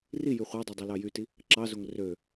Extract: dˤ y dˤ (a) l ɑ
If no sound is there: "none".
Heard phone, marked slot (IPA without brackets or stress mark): ɑ